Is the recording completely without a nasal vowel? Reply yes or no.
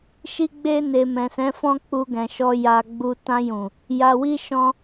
no